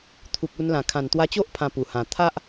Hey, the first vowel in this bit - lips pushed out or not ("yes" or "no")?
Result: yes